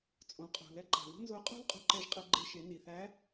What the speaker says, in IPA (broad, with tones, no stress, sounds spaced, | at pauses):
t͡sʼ õ˩˧ qʼ ṳ˩ l ɛ˧ ǃ a̤˩ ð ṳ˥ n z o˧˥ qʼ ṳ˥ l qʼ ṳ˧ ǃ ɛ˧ ʒ qʼ ɘ˧ ɡ͡ǃ e˧ ʃ e˩˧ n i˩ θ æ˧˥